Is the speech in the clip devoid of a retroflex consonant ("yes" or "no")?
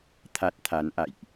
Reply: yes